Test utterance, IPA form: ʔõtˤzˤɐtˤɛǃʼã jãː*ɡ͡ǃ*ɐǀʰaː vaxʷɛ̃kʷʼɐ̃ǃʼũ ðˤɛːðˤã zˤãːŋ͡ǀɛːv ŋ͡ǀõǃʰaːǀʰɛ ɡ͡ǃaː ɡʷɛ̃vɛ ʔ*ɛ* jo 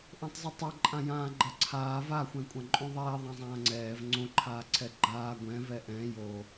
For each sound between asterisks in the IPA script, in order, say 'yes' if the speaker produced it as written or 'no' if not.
yes, no

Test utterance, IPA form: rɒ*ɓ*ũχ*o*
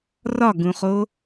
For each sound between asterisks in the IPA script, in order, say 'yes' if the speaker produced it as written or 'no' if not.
no, yes

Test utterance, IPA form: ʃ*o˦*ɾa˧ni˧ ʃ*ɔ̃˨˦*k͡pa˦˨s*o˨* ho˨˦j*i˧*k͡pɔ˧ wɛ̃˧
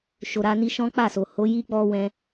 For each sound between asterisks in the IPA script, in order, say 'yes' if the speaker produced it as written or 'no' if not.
no, no, yes, no

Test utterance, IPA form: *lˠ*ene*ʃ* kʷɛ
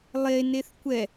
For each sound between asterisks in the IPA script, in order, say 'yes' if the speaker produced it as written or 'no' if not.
yes, no

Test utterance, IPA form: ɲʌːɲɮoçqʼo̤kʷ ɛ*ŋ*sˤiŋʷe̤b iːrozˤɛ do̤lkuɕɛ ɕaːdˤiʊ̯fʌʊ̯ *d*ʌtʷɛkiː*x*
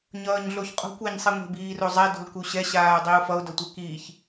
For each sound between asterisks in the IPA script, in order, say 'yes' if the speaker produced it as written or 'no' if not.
no, yes, no

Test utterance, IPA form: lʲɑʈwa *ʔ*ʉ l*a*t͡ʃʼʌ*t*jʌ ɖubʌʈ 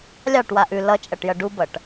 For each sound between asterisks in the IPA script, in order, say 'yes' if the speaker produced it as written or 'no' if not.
yes, no, no

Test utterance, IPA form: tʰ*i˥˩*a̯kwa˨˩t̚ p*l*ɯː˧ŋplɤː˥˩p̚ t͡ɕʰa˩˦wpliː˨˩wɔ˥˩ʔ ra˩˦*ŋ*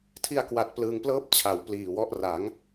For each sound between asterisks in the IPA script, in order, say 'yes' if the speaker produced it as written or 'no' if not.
no, yes, yes

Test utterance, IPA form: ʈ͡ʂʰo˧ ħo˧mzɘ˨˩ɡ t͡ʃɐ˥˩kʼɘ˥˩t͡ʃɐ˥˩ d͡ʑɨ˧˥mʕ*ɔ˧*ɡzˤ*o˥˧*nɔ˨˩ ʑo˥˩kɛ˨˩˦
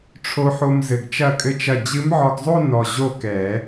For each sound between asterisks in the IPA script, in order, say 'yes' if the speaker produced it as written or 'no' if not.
yes, yes

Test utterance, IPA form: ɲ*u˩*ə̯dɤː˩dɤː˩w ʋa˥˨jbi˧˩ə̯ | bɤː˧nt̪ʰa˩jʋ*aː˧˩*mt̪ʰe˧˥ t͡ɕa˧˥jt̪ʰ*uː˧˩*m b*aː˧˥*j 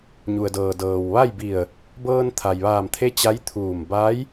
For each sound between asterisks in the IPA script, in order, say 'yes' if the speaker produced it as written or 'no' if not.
yes, yes, yes, yes

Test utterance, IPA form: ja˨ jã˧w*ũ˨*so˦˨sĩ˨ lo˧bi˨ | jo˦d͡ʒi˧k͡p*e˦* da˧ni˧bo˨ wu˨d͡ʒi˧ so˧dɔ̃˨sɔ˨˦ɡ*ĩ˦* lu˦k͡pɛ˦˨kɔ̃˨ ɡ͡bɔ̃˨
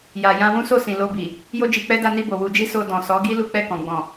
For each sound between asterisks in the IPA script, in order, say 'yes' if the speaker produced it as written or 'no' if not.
no, no, no

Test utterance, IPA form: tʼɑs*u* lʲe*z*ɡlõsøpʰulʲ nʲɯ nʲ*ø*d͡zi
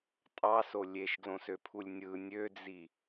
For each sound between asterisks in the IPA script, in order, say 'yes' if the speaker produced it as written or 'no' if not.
no, no, yes

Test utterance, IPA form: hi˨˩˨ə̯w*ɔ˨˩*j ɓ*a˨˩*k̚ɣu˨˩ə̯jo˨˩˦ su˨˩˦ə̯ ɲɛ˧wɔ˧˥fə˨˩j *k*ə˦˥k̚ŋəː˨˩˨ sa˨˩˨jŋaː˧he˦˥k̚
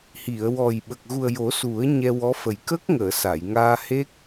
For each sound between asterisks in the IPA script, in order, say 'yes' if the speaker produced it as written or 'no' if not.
yes, no, yes

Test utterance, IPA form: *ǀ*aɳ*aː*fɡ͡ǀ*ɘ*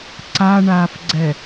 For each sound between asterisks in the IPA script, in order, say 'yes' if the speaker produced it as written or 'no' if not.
yes, yes, no

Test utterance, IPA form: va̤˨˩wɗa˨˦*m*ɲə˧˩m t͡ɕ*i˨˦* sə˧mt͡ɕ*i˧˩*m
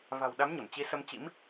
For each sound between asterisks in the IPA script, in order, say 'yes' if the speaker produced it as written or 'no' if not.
yes, yes, no

